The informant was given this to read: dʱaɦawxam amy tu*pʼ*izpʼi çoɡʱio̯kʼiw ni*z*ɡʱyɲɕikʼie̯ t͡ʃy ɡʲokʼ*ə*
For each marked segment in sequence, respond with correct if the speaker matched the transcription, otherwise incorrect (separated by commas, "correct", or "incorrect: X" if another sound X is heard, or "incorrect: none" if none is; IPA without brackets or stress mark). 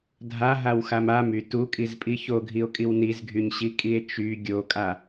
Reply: incorrect: kʼ, correct, incorrect: a